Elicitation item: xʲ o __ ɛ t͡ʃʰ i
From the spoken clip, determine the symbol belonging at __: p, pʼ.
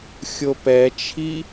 p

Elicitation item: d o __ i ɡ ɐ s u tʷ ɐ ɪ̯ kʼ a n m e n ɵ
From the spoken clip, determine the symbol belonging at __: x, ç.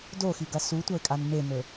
x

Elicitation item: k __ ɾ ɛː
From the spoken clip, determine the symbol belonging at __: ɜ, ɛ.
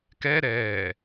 ɛ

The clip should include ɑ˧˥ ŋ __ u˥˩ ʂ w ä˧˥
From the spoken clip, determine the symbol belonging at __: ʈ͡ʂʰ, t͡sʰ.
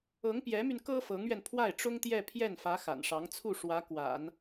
t͡sʰ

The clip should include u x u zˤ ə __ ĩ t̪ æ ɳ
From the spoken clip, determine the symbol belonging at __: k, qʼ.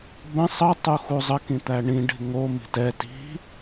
k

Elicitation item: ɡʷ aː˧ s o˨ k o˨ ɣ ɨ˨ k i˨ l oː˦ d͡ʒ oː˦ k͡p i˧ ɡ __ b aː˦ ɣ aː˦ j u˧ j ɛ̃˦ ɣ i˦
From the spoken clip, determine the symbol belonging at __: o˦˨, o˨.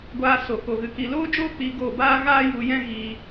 o˦˨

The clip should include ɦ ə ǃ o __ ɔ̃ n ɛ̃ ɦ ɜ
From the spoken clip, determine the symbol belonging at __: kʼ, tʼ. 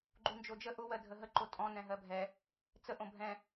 tʼ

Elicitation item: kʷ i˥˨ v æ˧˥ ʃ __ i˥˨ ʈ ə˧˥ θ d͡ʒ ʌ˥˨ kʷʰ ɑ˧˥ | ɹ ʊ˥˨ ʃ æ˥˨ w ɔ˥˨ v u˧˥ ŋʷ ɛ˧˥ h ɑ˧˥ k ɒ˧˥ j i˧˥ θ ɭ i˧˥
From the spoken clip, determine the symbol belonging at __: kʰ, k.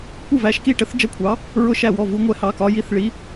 k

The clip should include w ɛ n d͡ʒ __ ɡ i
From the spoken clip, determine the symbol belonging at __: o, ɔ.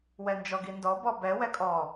ɔ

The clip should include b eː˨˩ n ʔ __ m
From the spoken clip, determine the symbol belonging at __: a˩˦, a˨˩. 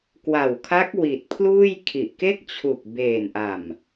a˨˩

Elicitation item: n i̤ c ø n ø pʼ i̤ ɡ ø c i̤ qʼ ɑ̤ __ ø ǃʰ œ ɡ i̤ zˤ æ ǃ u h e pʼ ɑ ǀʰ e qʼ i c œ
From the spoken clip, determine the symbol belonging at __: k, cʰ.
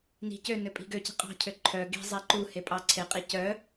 cʰ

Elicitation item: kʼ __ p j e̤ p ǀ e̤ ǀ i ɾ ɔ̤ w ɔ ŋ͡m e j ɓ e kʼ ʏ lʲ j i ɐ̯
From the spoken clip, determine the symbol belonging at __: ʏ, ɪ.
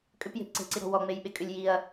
ʏ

